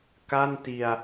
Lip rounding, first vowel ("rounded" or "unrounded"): unrounded